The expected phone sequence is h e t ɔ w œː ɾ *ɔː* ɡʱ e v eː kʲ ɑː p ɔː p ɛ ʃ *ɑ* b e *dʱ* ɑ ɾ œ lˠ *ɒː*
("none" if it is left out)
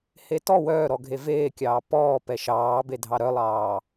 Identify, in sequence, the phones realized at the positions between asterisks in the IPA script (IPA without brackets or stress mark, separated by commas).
ɔ, ɑː, dʱ, ɑː